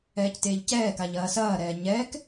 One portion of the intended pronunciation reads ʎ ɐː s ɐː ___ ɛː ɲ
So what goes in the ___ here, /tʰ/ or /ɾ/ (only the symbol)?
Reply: ɾ